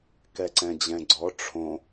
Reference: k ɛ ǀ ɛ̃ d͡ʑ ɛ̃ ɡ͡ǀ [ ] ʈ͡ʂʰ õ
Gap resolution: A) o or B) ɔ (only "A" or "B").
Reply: B